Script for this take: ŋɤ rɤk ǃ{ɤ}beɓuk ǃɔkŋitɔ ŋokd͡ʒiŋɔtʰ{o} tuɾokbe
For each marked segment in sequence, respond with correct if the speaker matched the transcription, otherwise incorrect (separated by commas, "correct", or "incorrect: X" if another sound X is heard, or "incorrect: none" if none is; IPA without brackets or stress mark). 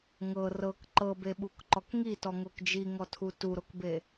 correct, incorrect: u